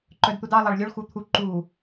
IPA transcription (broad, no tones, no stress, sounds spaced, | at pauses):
ǃ œ d t̪ u d ɑ lˠ ɑ ɭ lʲ o ɭ x u t̪ʰ u ǃ u